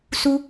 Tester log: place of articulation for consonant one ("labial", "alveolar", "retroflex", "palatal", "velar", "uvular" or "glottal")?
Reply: alveolar